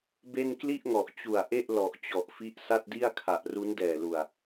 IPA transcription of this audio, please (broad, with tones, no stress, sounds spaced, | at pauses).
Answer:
b e˥˩ n k l i˥˩ ʔ ŋ ɔ˨˩ ʔ t͡ɕ u˨˩ a̯ ʔ e˥˩ ʔ l ɔ˨˩ ʔ t͡ɕ ɔ˨˩ ʔ f i˦˥ ʔ s a˥˩ t̚ d i˥˩ a̯ kʰ a˨˩ ʔ r u˦˥ n d ɛː˨˩ l u˨˩ a̯